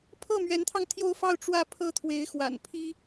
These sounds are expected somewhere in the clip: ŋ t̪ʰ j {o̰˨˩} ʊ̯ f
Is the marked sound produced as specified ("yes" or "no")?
no